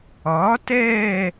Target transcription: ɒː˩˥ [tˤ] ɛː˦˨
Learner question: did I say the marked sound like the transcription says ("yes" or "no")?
no